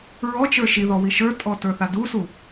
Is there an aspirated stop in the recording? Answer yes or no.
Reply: no